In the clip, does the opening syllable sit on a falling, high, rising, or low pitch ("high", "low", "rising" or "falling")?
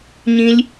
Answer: high